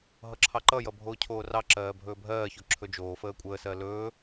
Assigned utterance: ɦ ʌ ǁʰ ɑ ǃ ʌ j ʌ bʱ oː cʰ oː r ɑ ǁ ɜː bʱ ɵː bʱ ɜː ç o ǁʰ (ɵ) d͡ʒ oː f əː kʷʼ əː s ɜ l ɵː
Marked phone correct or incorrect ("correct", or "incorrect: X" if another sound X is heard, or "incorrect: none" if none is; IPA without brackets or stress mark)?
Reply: correct